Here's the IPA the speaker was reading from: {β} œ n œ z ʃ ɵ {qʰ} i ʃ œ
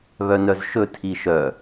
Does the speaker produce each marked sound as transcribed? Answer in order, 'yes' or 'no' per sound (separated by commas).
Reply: yes, no